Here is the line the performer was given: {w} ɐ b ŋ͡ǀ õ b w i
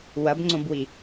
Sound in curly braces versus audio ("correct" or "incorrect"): correct